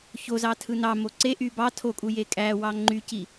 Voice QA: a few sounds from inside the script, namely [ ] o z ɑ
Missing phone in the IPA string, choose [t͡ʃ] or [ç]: ç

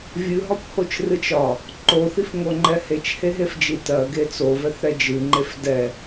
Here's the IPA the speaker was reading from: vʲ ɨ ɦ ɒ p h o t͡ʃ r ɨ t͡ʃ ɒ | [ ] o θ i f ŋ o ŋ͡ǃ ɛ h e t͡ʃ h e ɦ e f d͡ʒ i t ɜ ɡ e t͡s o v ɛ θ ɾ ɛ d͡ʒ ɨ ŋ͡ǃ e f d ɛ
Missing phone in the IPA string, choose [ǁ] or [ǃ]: ǃ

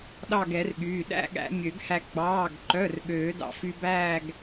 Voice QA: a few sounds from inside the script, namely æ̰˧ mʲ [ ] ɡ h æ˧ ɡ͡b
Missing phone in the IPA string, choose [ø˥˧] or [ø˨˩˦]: ø˨˩˦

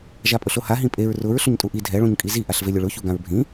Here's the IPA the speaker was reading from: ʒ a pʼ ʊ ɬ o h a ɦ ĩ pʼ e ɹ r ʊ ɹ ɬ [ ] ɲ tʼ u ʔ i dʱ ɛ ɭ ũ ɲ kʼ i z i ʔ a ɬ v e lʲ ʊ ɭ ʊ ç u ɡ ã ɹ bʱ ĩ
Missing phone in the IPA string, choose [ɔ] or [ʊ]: ʊ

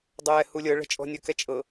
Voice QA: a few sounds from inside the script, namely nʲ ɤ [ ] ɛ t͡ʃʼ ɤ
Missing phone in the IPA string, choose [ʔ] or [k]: k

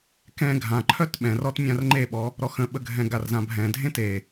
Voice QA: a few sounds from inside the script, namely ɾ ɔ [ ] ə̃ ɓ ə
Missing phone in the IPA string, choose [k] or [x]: x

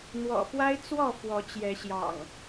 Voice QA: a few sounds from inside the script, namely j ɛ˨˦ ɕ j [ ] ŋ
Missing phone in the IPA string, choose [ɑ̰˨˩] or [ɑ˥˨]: ɑ̰˨˩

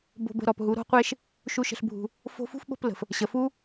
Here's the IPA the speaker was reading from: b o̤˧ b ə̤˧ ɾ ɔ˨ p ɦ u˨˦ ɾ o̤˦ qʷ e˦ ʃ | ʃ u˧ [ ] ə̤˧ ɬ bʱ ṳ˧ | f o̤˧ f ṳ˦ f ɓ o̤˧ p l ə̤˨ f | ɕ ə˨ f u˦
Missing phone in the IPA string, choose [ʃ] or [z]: ʃ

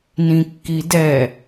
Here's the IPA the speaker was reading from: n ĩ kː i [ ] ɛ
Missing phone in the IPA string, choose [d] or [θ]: d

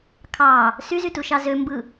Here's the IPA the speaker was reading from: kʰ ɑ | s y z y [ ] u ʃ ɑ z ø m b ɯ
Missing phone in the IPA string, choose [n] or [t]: t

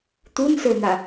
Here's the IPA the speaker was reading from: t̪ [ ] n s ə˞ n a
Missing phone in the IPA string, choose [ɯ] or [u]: u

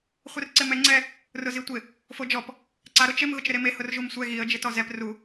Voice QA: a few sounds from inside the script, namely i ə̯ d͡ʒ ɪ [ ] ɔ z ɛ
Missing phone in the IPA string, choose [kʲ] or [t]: t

